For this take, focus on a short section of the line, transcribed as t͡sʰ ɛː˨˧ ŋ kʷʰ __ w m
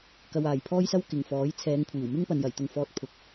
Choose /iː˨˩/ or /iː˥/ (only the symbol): iː˨˩